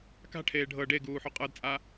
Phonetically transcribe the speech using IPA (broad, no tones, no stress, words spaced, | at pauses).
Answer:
ka̤ʈʰeː ɖʱɤ ɖeɡuːħo qʼɤdt͡sʼa